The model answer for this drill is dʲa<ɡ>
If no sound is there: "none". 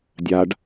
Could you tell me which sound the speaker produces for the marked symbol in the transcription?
ɖ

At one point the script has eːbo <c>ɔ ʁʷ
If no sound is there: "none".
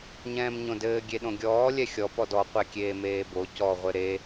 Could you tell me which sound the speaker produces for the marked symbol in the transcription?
c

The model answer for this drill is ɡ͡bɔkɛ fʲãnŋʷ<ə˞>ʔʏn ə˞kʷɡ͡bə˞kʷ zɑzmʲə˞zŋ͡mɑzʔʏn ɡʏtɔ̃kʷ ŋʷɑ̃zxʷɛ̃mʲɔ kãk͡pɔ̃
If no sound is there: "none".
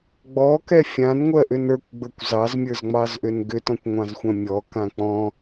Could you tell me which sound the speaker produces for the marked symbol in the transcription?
ɜ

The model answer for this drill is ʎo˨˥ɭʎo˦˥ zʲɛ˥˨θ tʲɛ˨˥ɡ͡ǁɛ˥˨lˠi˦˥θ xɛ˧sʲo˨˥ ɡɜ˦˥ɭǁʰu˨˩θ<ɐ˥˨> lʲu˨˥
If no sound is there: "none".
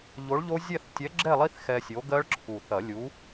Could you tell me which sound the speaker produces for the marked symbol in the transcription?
ɐ˨˩˦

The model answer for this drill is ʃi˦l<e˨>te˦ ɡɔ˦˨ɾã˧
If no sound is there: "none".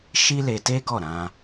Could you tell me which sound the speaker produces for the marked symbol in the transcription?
e˧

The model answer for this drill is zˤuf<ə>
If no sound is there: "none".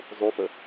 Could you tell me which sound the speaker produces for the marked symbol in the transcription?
ə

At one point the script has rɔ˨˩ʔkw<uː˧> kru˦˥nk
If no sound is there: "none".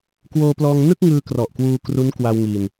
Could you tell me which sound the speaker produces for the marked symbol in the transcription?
uː˧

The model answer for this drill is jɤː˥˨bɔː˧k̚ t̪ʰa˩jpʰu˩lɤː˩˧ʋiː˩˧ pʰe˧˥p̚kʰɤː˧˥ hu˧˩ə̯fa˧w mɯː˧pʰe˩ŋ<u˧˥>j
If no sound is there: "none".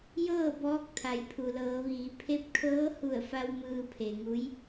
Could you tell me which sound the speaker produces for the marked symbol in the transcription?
u˧˥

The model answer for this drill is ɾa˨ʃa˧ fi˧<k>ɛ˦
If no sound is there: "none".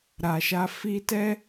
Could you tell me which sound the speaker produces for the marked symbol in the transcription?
t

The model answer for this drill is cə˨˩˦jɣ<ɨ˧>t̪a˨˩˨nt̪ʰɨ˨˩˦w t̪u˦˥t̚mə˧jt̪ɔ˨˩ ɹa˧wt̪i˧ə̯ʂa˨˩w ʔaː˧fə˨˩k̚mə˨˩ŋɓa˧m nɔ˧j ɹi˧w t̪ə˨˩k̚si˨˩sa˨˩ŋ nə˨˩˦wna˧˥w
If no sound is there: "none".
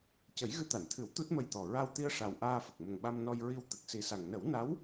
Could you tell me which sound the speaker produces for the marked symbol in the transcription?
ɨ˧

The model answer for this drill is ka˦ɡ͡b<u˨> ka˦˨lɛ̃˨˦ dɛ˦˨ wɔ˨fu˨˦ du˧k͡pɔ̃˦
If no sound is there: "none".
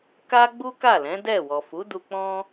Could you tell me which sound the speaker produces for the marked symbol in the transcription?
u˦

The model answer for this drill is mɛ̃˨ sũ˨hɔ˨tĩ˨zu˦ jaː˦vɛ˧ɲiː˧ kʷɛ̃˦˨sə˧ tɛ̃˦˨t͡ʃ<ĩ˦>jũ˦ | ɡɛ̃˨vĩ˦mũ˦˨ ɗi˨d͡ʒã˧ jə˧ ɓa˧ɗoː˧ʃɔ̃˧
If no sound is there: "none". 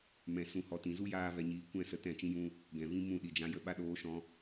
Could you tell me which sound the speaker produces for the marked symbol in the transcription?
ĩ˦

